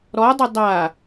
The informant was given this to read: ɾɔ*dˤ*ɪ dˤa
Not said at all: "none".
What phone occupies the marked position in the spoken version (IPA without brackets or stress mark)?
dˤ